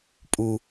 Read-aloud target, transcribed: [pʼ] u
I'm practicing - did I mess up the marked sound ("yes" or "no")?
no